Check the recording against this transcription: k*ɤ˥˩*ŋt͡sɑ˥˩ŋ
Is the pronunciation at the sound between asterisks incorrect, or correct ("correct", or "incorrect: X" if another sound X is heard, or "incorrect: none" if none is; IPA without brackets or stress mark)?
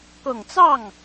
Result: incorrect: ɤ˨˩